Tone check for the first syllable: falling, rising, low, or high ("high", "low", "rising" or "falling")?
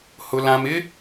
low